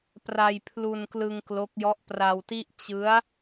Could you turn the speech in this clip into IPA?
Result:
p r a˧ j pʰ l u˧ n k l ɯ˧ ŋ k l o˦˥ k̚ j ɔ˦˥ ʔ p r a˧ w t i˥˩ ʔ t͡ɕ ɯ˦˥ a̯

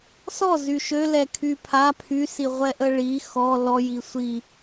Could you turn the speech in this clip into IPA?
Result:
s ɔ z y ʃ ø l ɛ kʰ y pʰ a pʰ y s i ʁʷ ɛ ʔ ə ɭ i x ɔ l ɔ j i sʷ i

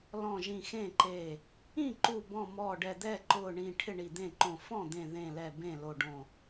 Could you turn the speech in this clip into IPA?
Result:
l ɔ̃˧˩ ʒ ĩ˧˩ x ẽ˥˩ ǃ e˧˩ | ĩ˥˩ ǃ u˧˩ b ɔ̃˧˩ m ɔ˧˩ ɖ ɛ˧˩ d̪ ɛ˥˩ ǃ ʊ˧˩ ɳ ĩ˧˩ ʈʰ ɪ˥˩ ɳ i˧˩ d̪ ẽ˥˩ ǃ õ˧˩ f ɔ̃˥˩ d̪ ẽ˧˩ ð ẽ˧˩ l ɛ˧˩ b ẽ˥˩ l o˧˩ ɖ õ˧˩

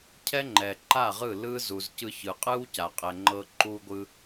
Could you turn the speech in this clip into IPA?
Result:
cʰ ɛ˦ ŋ͡ǃ ɛ˨ ǃ a˦˨ ʁ ɯ˦˨ l ɯ˦ z u˨ z c ɯ˧ ç ɯ˨ qʼ ɯ˦ w c a˨ qʼ ɛ˨ ŋ͡ǃ ɤ˧ ǃ u˦ ɡʷ ɯ˦

